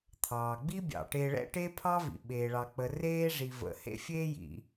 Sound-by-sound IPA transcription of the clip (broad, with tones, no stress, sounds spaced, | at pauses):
t̪ʰ ɑː˩ ɡ͡b i˥ bʲ ɑ̰˩ ʈ e˨ ɭ ɛ̰˦ ʈ e˥ pʰ ɑ˥ v ḭ˩ ɓ eː˩ ɭ ɑ˩ k͡p ə˩ r eː˦ ʐ i˩ v ə̰˩ h ḛ˦ fʲ eː˦ j ḭ˩